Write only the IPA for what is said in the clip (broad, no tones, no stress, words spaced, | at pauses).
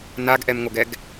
naɡʔɛmŋoɡɛɡ